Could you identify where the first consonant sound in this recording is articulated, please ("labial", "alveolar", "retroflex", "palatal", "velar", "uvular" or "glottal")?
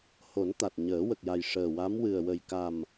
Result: glottal